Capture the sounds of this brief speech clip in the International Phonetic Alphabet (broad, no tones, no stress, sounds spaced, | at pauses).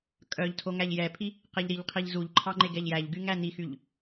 kʼ œ ʎ tʰ o ŋ æ ʎ j ɛ pʰ i | q e ʎ ɾ i ʎ qʰ i ʎ z u ʎ ǃʰ ɑ ŋ͡ǃ e ɡ ɛ ʎ j æ ʎ ɡ y ŋ æ n i x y ʎ